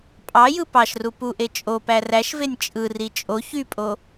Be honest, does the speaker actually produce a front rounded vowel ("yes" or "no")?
yes